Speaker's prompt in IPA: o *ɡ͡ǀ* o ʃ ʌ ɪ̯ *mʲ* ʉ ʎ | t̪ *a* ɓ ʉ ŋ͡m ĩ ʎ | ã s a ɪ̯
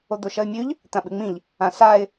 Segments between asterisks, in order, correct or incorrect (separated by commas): incorrect, correct, incorrect